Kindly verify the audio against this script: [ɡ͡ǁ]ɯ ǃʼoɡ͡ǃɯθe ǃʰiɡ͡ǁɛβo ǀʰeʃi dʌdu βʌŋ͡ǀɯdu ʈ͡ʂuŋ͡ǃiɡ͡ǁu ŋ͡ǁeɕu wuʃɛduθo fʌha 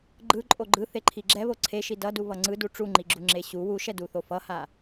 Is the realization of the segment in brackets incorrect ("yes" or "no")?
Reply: yes